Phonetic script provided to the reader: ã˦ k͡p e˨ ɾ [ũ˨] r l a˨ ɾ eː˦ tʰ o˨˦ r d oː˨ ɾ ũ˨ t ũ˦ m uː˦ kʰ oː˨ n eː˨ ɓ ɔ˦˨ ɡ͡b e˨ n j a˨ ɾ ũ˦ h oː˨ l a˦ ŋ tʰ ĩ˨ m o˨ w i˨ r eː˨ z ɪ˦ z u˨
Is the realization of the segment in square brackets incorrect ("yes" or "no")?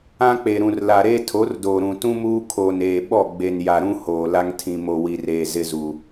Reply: no